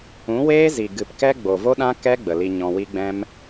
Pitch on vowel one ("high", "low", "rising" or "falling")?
rising